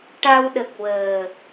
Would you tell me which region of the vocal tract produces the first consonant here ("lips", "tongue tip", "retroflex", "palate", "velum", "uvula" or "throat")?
retroflex